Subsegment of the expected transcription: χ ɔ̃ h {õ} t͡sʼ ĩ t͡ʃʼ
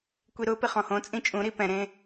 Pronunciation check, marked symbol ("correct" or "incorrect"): correct